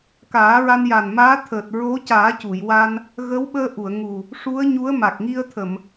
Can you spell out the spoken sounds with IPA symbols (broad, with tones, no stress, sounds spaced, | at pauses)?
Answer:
k aː˨˩˦ ɹ a˧ n j a˨˩ n m aː˧˥ t̪ʰ əː˨˩ t̚ ɹ o˧˥ c aː˨˩˦ c u˨˩˨ j w a˧ n | ɣ ə˧˥ w ɓ əː˧ ʔ u˨˩˨ ə̯ ŋ u˨˩ | ʂ u˧˥ ə̯ ɲ u˧˥ ə̯ m a˨˩ k̚ ŋ i˧ ə̯ t̪ʰ ə˨˩˨ m